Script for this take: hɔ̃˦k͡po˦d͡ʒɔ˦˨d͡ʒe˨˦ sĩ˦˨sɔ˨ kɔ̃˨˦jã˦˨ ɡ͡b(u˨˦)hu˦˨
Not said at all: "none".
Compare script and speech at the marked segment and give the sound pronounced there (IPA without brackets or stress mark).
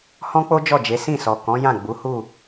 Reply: u˨˦